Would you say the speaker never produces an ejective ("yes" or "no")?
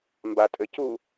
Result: no